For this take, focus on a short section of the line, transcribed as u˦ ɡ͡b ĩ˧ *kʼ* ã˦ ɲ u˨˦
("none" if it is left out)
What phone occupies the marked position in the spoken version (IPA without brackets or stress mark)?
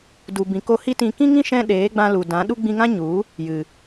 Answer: ŋ